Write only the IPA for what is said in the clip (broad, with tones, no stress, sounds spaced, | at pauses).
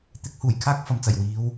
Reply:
t̪ ɪ˨˥ k̚ h uː˨˩ j kʰ aː˥ k̚ f ɐ˨ m t͡s ɐ˨˩ j w iː˨˧ w